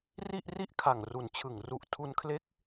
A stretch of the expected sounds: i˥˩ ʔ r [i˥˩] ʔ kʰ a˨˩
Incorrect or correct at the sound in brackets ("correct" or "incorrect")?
correct